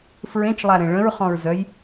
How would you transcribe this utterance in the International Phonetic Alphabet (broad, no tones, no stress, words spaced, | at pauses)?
fɹẽt͡ʃlˠaɾẽ ɭə̃ɹχɔ̃ɹzœj